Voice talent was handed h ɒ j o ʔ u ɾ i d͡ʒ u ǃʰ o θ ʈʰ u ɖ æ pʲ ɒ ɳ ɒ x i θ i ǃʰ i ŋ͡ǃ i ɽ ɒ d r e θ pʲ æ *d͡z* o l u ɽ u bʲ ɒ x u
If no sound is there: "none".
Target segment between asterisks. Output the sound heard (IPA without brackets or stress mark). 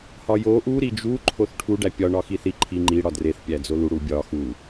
d͡z